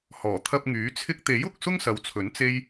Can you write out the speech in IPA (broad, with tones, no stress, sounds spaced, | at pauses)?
h ɔː˨˩ t̪ʰ ɐ˧ p̚ ŋ yː˨˥ t͡sʰ ɪ˧ k̚ t̪ e˨˥ j ʊ˧ k̚ s ʊ˥ ŋ s ɐ˨ w t͡sʰ ɵ˨˥ n t͡s e˥ j